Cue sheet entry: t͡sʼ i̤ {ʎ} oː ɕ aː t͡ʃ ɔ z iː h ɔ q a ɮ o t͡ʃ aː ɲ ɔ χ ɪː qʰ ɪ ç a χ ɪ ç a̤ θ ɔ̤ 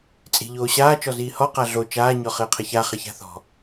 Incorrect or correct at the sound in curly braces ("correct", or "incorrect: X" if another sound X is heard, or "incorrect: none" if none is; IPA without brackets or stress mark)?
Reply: correct